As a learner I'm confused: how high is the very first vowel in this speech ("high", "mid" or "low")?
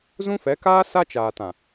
high